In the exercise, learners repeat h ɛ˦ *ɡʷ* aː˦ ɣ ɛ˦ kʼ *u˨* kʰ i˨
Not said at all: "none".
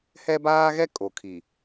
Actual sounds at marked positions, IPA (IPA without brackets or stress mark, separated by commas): b, o˨